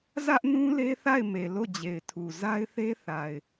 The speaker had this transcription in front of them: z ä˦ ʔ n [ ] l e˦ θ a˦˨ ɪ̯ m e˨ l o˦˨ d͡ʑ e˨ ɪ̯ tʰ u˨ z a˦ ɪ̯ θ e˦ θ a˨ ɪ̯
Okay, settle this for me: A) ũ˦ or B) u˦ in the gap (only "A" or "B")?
A